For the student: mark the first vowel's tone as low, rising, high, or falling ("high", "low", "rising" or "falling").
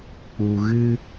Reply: low